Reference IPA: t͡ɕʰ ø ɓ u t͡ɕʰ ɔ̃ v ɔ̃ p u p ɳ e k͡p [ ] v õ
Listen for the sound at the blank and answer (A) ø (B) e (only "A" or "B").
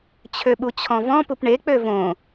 A